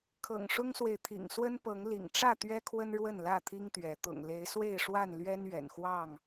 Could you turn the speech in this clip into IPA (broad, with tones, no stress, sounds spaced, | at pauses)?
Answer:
kʰ ɤ̰˨˩ ŋ ʂ ʊ˦ ŋ s w e˨ ɪ̯ t̪ʰ ḭ˨˩ ŋ s w ə˦ n p ɤ˨˦ ŋ l ḭ˨˩ ŋ ʈ͡ʂ ä˥˨ t̪ ɥ ɛ˦ kʰ w ə˦ n ɻ w ə˥˨ n l ä˥˨ t̪ʰ i˦ ŋ t̪ ɥ ɛ˨˦ t̪ ʊ̰˨˩ ŋ l e˨˦ ɪ̯ s w e˥˨ ɪ̯ ʂ w a˥˨ n l ɥ ɛ˦ n ɥ ɛ̰˨˩ n x w ɑ˥˨ ŋ